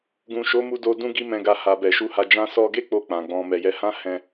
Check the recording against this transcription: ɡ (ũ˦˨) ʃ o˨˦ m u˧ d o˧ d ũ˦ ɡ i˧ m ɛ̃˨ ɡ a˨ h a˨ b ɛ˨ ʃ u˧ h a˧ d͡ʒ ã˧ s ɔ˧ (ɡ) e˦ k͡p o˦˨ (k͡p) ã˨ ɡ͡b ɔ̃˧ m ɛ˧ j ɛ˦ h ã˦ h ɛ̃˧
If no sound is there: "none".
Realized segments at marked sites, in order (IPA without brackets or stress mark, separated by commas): ũ˨, ɡ, k͡p